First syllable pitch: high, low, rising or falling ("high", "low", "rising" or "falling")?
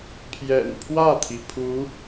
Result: low